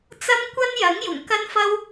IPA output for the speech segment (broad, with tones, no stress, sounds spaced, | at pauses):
t͡s ɐ˥ m kʷ ɐ˥ n j ɐ˨˥ ŋ j ʊ˨˩ ŋ k ɐ˥ n f ɐ˥ w